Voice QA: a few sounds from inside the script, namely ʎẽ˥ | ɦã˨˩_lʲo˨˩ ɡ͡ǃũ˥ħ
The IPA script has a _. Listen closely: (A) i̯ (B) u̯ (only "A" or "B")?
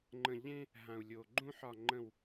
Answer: B